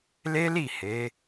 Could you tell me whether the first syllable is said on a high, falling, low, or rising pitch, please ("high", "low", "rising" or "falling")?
high